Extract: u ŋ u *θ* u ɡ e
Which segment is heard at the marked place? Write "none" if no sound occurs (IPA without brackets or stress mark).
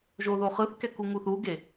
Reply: θ